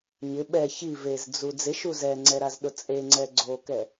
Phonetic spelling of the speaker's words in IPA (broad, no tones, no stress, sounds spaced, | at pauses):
ɲ ɪ ɓ ɛ ç i v e z d͡z u d͡z ɪ ʃ u z ɛ ŋ͡ǀ ɛ ɾ a z ɗ ʊ t͡sʼ e ŋ͡ǀ ɛ ɡ͡ǀ o k ɛ